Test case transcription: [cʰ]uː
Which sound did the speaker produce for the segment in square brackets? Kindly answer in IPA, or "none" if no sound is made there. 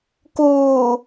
k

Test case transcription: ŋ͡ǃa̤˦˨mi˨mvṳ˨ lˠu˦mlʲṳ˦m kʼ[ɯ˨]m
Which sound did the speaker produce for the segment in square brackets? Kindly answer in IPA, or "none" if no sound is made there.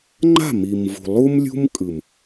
ɯ˨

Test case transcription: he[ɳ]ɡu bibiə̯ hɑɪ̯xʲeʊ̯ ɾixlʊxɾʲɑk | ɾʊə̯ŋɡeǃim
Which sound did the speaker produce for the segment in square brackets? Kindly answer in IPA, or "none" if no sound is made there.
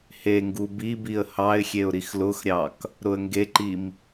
ŋ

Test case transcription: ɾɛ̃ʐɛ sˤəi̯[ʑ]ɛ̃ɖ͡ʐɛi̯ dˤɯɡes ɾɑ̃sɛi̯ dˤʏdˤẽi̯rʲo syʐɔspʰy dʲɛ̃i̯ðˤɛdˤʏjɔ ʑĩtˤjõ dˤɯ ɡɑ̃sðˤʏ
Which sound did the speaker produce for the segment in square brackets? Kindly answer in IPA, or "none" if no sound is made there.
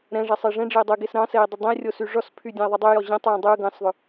ʐ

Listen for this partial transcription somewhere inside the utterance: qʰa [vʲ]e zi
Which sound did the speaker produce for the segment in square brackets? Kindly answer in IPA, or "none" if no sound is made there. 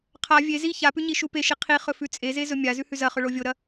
vʲ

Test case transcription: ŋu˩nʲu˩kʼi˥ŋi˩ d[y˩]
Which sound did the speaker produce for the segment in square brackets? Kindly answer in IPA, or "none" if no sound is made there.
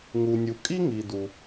u˩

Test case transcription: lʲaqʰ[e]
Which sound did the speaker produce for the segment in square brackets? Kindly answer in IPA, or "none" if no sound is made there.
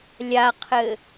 ɘ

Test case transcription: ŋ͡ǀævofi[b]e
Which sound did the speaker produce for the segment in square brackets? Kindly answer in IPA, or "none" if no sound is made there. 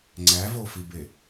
b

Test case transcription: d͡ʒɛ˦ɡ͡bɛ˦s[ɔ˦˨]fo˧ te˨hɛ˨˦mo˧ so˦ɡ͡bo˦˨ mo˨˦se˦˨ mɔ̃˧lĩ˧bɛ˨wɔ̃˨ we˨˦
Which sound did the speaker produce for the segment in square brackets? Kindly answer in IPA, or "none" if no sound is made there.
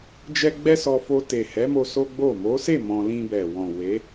ɔ˧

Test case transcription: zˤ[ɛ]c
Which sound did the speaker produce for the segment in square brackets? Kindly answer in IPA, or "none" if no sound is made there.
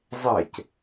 ɛ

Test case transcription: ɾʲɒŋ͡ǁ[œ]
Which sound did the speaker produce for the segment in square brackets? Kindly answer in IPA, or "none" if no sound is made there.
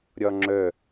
œ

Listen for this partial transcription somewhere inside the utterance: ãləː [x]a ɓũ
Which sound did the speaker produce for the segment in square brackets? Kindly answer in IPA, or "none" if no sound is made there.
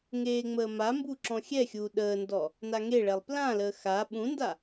x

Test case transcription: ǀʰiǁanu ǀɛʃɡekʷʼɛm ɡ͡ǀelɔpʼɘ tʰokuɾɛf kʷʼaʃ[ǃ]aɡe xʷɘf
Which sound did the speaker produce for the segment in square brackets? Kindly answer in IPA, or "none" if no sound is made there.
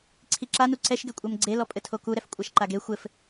ǃ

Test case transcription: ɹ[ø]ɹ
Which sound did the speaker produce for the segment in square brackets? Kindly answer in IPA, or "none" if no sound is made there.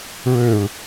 ø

